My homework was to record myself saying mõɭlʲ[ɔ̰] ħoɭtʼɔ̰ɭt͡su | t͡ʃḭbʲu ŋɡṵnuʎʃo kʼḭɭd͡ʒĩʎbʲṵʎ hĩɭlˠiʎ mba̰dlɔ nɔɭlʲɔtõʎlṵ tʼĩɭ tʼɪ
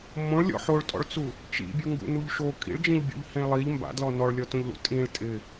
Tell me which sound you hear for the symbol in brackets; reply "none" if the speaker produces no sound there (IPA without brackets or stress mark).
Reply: ɔ̰